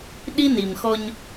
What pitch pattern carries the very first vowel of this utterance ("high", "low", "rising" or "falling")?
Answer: high